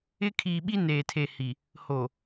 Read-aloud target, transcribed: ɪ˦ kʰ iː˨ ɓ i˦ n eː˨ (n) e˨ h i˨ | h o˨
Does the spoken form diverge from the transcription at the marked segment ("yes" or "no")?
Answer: yes